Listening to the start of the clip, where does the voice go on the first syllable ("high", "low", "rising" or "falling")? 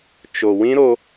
low